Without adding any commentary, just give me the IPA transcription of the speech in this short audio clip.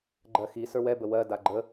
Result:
ɡ͡ǃ ɜ x i s ə˞ w ɛ b ə w ɜ d a ɡ͡ǃ ə

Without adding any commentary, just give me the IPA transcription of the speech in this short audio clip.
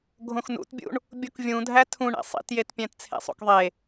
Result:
ɡʱ õ x n ṵ t bʲ ṵ ɳ | bʲ o k vʲ ũ dʱ æ tʰ ũ ɳ ḛ sˤ ḭ t j e t pʲ æ̃ t t͡sʰ ḛ sˤ o̰ k ðˤ e

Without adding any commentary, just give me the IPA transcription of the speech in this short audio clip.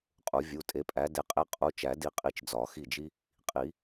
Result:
qʼ u˨˩˦ vʲ u˩˧˩ tʼ e˨˦ pʼ æ˨˦ d e˨˦ qʼ e˦ qʼ u˨˦ t͡ʃ æ˨˩˦ d i˨˦ qʼ i˧˩ t͡ʃ d͡z ɒ˨˩˦ x i˧˩ d͡ʒ i˦ | qʼ i˨˩˦

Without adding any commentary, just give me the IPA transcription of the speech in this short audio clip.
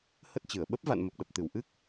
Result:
h ə˦˥ t̚ t͡ɕ ɨ˧˩ ə̯ ɓ ə˦˥ p̚ v a̰˧˨ n m ə˨˩ p̚ ɗ ə˨˩ p̚ t̪ ɨ˧˩ w ʔ ɨ˦˥ k̚

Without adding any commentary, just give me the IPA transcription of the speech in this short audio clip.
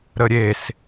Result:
ɾ ə ɾʲ e s

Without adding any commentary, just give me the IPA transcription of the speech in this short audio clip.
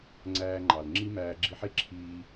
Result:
ŋ͡ǀ æː˧ ŋ͡ǃ ɑ˩ l ŋ͡ǁ i˥ m æː˧ ɡ͡ǁ i˧ ħ e˥ ǁʰ iː˧

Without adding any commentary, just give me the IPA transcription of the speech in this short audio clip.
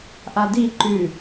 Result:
ʔ a d i ǃ ʉ

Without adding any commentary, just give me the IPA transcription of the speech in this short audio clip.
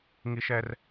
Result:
ŋ i˥ ʃ ɛ˥ r

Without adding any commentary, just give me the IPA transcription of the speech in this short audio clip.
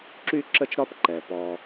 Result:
ǁ y˥ ǁ ə˥ t͡ʃ ɾ ɒ˥ p ǃ ɛ˩ p ɔ˧

